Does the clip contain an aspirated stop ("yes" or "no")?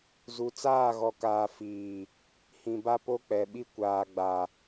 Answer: no